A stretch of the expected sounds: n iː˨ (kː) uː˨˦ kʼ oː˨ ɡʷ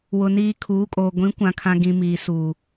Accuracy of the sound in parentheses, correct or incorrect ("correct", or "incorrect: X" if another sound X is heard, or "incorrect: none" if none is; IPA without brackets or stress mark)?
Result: incorrect: kʰ